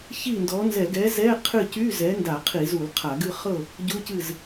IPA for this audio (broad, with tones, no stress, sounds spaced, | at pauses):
ç i˥˨ n d ɔ˨˥ n z ɛ˧˩˧ ɡ ɛ˨˥ z ɛ˧˥˧ qʰ ɨ˥˨ c y˧˥˧ z ɛ˨˥ n d a˧˩˧ qʰ i˧˩˧ z u˧˩˧ l qʰ a˧˩˧ ɡ ɨ˥˨ χ ɤ˥˨ | ɟ u˧˥˧ c ɨ˥˨ z